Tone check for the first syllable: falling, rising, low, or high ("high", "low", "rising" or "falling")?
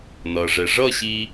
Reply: low